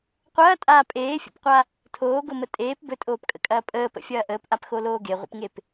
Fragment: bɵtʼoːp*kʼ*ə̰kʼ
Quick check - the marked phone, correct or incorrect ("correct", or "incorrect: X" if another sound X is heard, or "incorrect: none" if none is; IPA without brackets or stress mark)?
correct